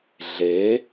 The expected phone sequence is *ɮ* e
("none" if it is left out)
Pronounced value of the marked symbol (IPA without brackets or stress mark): ɮ